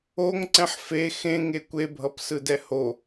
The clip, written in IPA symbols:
o ŋ ǀ ɛ̃ ħ f e x ẽ ŋ e kʷ e bʱ ʌ p s ɯ d ɛ h o

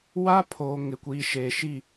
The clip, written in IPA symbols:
w a˦ pʰ oː˨ ŋ ɪ˨ kʷ iː˨ ʃ eː˨ ʃ i˦˨

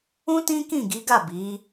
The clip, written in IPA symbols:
ũ˦ t ĩ˦ k ĩ˦˨ ɡ i˨˦ ɡ a˦˨ b i˨˦

